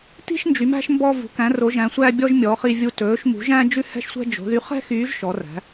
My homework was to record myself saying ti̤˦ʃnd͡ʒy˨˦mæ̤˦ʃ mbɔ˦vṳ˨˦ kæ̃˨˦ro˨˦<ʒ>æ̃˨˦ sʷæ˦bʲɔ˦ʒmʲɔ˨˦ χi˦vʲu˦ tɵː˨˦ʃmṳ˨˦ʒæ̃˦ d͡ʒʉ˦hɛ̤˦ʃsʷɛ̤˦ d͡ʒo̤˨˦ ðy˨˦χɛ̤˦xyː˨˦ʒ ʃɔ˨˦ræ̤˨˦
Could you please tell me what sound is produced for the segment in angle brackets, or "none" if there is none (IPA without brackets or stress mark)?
ʒ